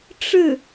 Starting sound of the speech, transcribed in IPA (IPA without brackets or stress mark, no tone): ʈ͡ʂ